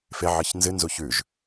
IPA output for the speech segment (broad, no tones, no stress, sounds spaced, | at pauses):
f e ʕ ɨ ç n z ɨ n z u ç ʉ ʒ